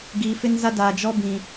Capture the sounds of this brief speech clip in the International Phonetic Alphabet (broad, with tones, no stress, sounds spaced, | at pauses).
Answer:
ɡ iː˨ f ɪ˦ n z a˦ d aː˨ d͡ʒ ɔ˦ b ĩ˨